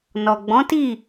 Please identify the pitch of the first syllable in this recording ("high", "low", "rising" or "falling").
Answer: low